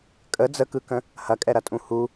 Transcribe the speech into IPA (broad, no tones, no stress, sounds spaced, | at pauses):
kʼ ə d͡z ə k ɯ k ə̃ | h ɐ kʼ ɛ ɾ ɐ tʼ ũ h u